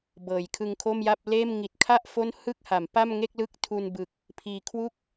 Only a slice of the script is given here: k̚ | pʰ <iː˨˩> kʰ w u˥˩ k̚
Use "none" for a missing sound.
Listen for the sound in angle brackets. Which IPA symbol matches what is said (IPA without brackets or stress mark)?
iː˨˩